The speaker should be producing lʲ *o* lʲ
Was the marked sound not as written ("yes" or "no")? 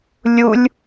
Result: yes